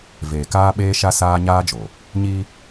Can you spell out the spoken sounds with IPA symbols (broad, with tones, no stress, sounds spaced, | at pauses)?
v eː˨ k aː˦ ɓ eː˦ ʃ a˦ s aː˦ ɲ aː˦ d͡ʒ o˨ | ɲ i˦